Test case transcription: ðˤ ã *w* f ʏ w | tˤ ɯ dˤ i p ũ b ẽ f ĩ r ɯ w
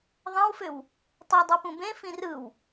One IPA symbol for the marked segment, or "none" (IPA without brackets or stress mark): w